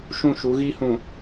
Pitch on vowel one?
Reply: falling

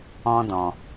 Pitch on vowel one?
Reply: high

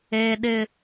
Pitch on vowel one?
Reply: high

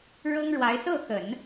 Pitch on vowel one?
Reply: high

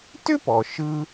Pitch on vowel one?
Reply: high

